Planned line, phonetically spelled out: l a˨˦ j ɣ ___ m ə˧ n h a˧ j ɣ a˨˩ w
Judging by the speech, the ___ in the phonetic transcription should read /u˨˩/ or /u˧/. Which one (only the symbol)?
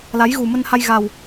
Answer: u˨˩